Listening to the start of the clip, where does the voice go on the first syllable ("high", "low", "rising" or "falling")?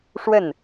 falling